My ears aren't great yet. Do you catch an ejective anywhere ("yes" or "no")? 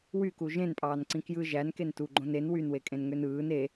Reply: yes